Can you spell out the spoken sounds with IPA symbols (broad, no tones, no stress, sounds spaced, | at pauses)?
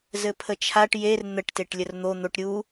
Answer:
z ɘ pʰ ə t͡ʃʰ a ʈ j e r n̪ ə ʈ t e ʈ lʲ ə r n̪ o n̪ o ʈ ɾʲ u